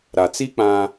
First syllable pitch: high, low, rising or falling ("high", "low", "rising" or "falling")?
low